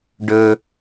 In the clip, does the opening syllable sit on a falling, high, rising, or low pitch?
high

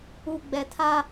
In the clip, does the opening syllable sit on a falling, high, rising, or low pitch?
low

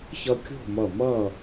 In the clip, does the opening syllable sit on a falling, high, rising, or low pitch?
high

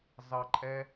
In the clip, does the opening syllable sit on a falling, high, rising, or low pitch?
low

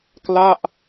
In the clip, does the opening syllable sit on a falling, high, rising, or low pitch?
falling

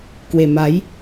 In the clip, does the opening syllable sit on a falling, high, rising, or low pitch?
low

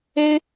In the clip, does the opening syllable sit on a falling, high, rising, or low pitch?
high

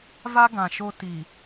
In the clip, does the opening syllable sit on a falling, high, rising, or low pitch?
high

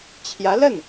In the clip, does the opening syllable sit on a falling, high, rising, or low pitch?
rising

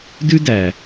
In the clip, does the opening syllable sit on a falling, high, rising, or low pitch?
high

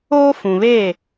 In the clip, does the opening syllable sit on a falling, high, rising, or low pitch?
high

